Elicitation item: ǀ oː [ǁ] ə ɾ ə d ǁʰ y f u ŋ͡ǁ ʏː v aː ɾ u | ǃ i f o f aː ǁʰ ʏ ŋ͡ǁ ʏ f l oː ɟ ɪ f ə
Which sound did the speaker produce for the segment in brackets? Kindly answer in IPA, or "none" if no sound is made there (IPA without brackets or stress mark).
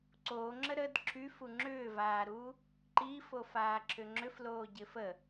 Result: ŋ͡ǁ